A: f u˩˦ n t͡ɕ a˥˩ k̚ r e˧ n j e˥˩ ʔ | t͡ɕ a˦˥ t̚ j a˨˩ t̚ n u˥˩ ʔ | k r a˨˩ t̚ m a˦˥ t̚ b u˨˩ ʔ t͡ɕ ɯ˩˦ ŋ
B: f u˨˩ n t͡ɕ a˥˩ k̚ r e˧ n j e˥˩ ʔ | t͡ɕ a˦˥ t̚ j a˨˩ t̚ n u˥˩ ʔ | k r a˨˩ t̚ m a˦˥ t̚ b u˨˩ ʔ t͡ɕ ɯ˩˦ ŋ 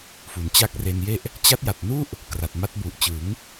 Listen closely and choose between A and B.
A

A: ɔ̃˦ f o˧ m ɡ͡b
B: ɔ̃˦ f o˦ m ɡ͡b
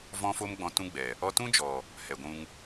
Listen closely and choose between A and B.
B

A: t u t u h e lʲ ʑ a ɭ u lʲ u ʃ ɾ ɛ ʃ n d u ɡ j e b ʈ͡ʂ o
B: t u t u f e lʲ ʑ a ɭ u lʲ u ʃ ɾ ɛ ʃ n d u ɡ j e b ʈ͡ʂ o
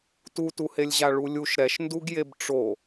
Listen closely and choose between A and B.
A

